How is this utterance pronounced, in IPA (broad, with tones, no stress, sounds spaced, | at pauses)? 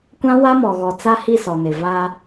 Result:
kʷ ã˦ w a˦ m ɔ˨ ɣ ɔ˨ t͡s a˦ h i˦˨ s ɔ˨ n ɪ˨ v a˦